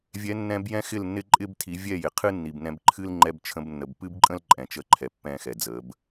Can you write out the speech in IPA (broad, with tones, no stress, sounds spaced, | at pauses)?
vʲ ɛ˨˦ nː ɛ̃˧ b j ɛ̃˦ x ɪ˦˨ l nː ɪ˦ ǃʼ ɪ˦ b tʰ i˨˦ vʲ ɛ˦˨ j ɪ˨ qʰ ɨ˦ nː i˨ b n ɛ̃˧ b ǃʰ ɨ˦ l ŋ͡ǃ ɛ˧ b t͡ʃʰ ə̃˧ b nː ə˨ b p ɨ˦ b ǃʼ ə̃˦ l ǃʼ ɛ̃˨ t͡ʃ ə˧ ǃʰ ɛ˨ pː ɛ̃˦˨ x ɛ˨ d͡z ə˨˦ b